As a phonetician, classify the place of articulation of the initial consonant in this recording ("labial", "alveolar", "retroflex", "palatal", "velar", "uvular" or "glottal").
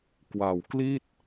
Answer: velar